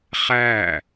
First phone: χ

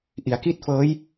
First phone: ʔ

